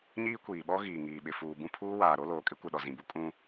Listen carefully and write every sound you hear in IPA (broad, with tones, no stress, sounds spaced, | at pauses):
ɲ iː˦ kʷ iː˨ ɓ ɔ˦ ɣ iː˨ ŋ iː˨ ɓ ɪ˨ f uː˨ b ũ˦ pʰ uː˦ w aː˨ ɾ o˦ l oː˨ kʼ ɪ˦ kʷ ɪ˨ ɗ ɔ˨ z ĩ˨ b u˦ kʼ ũ˦